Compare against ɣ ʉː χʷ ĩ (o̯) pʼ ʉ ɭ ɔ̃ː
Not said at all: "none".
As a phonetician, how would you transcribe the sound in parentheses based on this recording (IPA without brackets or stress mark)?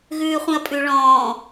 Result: ɐ̯